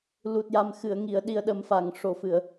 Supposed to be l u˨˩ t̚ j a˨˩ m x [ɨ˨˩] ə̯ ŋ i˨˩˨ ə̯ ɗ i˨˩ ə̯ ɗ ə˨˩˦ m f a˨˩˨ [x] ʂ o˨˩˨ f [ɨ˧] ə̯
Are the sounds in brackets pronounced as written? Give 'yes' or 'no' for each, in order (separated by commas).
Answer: no, no, no